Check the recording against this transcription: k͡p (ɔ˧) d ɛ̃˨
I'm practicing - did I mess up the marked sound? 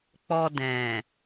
no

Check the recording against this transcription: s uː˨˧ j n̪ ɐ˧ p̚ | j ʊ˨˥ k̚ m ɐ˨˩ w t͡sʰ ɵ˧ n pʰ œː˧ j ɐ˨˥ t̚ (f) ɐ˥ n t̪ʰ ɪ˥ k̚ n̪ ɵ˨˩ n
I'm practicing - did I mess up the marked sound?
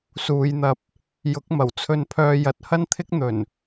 yes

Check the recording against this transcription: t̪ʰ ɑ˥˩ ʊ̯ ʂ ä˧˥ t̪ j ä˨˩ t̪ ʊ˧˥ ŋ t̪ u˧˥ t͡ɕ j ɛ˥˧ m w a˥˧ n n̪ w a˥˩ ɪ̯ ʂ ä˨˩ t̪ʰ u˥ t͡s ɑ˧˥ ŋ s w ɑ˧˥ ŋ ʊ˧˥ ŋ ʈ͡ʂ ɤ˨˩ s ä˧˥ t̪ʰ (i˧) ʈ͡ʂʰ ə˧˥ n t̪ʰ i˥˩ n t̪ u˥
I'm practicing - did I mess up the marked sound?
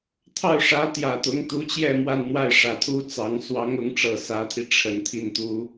no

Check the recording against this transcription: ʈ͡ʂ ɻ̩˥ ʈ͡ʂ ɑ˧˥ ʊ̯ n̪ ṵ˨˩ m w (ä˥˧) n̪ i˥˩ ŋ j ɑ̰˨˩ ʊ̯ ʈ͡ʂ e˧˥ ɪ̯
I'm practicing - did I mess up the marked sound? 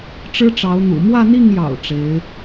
no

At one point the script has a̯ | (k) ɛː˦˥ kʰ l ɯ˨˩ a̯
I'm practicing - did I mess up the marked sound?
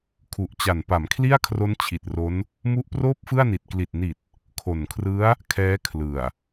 yes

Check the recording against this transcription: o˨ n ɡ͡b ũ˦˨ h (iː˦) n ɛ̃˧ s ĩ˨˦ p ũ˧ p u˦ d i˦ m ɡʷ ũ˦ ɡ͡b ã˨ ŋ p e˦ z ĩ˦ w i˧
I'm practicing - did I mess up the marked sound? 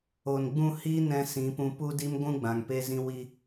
no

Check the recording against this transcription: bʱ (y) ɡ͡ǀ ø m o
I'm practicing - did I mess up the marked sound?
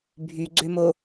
no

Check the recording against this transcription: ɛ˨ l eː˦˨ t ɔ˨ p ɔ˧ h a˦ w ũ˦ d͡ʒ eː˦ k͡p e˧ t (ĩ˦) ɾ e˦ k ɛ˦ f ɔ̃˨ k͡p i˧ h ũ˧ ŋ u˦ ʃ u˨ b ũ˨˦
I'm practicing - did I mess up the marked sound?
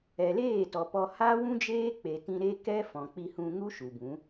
no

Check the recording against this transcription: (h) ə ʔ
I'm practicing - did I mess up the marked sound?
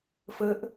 yes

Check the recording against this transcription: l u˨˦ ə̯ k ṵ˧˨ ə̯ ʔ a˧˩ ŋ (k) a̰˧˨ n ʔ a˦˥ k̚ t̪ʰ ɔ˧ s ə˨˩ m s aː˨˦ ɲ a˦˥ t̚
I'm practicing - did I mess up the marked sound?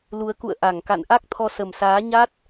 no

